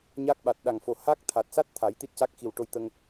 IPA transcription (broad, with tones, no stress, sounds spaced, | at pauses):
ɲ a˦˥ k̚ ɓ a˨˩ t̚ ɗ a˨˩ ŋ f o˨˩ h a˦˥ k̚ t̪ʰ a˨˩ t̚ s a˦˥ t̚ t̪ʰ a˨˩˦ j t̪ i˦˥ t̚ c a˦˥ k̚ x i˨˩ w ʈ o˧ j t̪ ə˧ ŋ